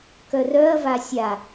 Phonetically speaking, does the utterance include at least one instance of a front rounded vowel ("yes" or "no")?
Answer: yes